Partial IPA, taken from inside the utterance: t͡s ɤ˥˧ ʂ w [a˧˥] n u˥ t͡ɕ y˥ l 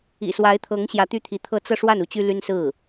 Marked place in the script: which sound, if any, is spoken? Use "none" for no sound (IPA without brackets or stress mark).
a˥˩